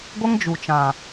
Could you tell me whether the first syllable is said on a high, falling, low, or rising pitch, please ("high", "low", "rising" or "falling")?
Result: high